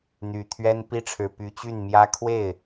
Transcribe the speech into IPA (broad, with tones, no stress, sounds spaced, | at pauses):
n̪ y˨˩ t̪ʰ ɥ ɛ˥ n p i˥˩ ʈ͡ʂʰ ɻ̩˨˩ p y˧˥ t͡ɕ y˥˩ n m j ä˥ kʰ w e˥˩ ɪ̯